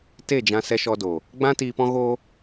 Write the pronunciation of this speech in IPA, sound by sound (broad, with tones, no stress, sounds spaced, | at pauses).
t e˦˨ d͡ʒ ã˧ s ɛ˧ ʃ ɔ˧ d o˨ | ɡ͡b ã˦ t iː˧ p ɔ̃˦ ɣ oː˦